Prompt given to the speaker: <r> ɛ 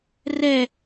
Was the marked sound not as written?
no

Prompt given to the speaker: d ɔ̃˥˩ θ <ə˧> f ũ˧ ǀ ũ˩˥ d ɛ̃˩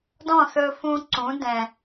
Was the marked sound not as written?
yes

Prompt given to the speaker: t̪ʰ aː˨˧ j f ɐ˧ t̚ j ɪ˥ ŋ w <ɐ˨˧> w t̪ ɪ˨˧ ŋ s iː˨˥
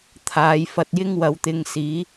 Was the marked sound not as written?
no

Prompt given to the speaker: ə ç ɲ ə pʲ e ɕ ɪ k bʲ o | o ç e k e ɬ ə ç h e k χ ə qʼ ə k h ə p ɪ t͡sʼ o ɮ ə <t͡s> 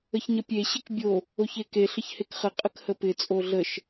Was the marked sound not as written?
yes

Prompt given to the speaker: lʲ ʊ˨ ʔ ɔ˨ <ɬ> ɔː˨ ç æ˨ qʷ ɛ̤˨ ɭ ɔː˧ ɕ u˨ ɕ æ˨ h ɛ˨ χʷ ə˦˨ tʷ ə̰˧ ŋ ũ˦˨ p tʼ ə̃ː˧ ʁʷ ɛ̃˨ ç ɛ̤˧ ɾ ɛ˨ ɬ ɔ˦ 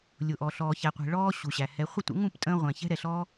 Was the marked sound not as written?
no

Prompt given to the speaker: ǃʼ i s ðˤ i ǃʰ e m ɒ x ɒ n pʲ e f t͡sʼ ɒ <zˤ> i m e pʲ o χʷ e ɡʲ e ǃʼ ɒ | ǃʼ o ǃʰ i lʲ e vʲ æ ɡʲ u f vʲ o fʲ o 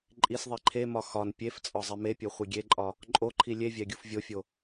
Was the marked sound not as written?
no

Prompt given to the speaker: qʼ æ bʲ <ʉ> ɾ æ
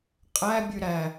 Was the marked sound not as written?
no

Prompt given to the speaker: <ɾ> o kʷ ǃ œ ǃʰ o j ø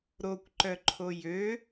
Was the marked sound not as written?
no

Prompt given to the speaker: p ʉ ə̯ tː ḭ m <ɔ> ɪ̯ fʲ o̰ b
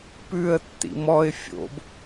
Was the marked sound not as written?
no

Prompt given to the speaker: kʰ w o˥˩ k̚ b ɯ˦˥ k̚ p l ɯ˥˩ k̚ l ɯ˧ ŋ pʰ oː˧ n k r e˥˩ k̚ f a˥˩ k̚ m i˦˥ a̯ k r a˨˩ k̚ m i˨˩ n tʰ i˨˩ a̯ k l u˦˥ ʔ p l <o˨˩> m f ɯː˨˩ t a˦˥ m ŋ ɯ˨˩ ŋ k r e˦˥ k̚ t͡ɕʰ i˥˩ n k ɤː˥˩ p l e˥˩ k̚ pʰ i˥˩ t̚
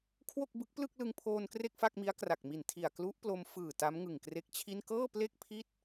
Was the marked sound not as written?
yes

